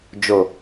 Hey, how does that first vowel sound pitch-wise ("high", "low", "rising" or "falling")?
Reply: low